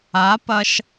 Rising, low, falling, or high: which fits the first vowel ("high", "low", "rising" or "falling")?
rising